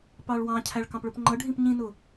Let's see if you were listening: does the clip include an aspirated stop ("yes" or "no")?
yes